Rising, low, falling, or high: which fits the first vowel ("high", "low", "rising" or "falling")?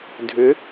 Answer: rising